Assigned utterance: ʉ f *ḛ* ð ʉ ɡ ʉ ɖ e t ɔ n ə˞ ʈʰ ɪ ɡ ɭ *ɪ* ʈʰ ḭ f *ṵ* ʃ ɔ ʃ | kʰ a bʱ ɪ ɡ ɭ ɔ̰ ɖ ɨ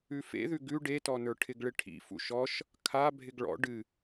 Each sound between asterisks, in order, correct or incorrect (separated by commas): correct, correct, correct